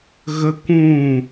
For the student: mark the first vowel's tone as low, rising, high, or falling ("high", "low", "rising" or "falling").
high